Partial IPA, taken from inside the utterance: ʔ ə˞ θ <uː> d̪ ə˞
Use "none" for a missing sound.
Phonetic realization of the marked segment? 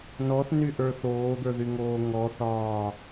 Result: oː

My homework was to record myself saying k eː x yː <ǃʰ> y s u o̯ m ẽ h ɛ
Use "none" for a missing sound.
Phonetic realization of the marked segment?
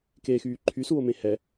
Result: ǃʰ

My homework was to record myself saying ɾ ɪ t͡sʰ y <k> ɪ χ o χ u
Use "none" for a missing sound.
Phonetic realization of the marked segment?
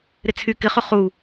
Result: k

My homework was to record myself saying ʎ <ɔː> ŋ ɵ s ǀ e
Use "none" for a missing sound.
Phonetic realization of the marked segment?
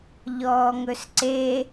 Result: ɔː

